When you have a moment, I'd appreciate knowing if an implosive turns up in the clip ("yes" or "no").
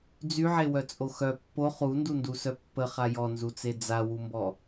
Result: no